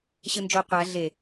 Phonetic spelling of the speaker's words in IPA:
ɕɯnd͡ʒo qʷæ ɮe

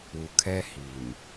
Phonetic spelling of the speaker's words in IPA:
u˨kʰɛ˦hi˨m

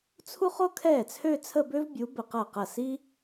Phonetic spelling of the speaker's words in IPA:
t͡sʰu˥χo˥ kʰɛː˥˩t͡sʰø˥˧t͡sʰə˥˧ bø˥vbʲu˨˥bɘ˧˩q ɐː˥˩qɐ˥˩ si˥

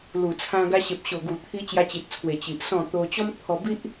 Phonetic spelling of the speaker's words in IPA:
lu˨˩t͡sʰã˧ ɡa˧ɕe˨p̚ ɕo˨˩ɡu˨˩t̪ʰi˧ t͡ɕja˧t͡ɕi˨t̚t͡sʰwe˨˩ t͡ɕi˨ʔ sɔ̃˥˧ t̪o˧t͡ɕɔ˦mt̪ʰɔ˧bi˦ʔ

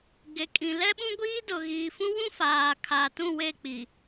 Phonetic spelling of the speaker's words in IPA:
ɡe˨kʼĩ˨ lɛ˦ɓũ˦ɡʷiː˦ dʊ˨ɣiː˨fũ˦wũ˦ faː˨kʰa˨tũ˦˨we˦˨ k͡pi˨

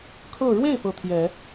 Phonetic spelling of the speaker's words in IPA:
kʰɤ˥˧ ɻwe˥˩ɪ̯ fɤ˧˥t̪ʰjɛ˨˩˦

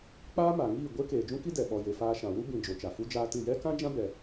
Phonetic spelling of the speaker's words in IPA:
k͡paː˦ma˨ŋiː˦˨ ɡʷe˦keː˨d͡ʒũ˦ki˦ dɛ˨ɓɔ˨ je˨faː˧ʃã˨wu˦ bĩ˨ d͡ʒo˨t͡ʃa˨fu˦ d͡ʒaː˧ tɨ˦˨ jɛ˦kã˦d͡ʒã˦ bɛ˧

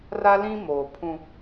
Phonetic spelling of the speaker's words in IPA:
ra˦lĩ˦moː˨ pʰũ˦

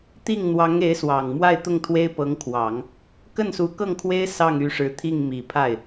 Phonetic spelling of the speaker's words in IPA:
t̪i˥˩ŋn̪wɑ˧˥ŋe˧˥ɪ̯ swɑ˨˩ŋmwa˥˧ɪ̯ t̪ʊ˥˩ŋt̪ʰwe˥ɪ̯pɤ˧˥ŋkʰwɑ˨˩˦ŋ | kə˥˩nsu˧˥kɤ˥˩ŋkʰwe˥ɪ̯ sɑ˥˩ŋy˧˥ʂɻ̩˧˥t̪ʰi˥˩ŋ mi˨˩pʰa˥˩ɪ̯

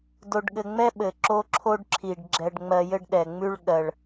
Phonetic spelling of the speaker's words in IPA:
do˧ɖɠɘ˧ŋ͡mɛ˥ ɓɘ˩ǁo˧ǁʰo˧ɖǁʰi˩ɖ ɡ͡ǁɛ˧ɖŋ͡mɜ˧ jɘ˥ɖɗɛ˩ŋ͡mʉ˥ɭ ɠɜ˩ɭ

